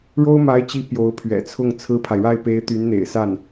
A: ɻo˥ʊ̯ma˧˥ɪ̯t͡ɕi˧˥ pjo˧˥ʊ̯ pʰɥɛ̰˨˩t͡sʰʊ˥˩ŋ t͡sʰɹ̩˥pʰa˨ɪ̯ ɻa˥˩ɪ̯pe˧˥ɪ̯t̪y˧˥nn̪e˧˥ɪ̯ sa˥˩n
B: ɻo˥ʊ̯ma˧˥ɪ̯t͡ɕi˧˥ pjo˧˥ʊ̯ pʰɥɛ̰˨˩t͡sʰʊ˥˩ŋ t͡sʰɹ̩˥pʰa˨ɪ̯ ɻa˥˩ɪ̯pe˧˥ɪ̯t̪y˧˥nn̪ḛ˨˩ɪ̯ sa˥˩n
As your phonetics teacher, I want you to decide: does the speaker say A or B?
B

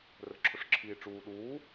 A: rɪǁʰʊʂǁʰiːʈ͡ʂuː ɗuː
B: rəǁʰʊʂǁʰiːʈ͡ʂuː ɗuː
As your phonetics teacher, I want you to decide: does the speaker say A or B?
B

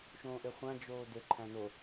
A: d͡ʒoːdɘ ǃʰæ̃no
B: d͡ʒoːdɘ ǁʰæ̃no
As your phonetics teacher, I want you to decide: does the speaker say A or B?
A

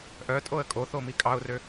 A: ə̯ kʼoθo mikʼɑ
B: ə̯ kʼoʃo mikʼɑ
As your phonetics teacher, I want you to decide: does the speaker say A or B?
A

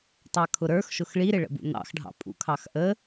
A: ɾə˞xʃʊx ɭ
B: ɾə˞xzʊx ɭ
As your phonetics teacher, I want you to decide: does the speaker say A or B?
A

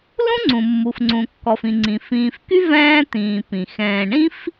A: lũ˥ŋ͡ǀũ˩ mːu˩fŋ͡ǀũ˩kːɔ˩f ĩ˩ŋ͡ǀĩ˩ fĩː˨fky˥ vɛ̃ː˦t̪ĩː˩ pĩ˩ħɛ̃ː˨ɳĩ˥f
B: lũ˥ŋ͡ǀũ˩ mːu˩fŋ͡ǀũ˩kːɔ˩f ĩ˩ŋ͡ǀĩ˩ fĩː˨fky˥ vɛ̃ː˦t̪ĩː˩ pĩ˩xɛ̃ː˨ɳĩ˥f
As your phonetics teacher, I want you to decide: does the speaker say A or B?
B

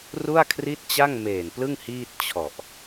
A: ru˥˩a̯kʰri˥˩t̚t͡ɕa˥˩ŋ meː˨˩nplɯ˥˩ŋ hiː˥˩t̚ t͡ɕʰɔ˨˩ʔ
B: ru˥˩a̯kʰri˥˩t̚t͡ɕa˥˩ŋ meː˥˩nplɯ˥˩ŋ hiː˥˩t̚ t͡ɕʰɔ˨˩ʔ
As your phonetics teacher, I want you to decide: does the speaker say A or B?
A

